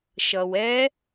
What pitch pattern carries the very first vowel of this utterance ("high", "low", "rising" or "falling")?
low